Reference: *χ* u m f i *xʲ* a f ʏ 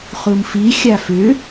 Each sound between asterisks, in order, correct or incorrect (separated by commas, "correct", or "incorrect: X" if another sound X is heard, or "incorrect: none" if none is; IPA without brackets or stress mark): correct, correct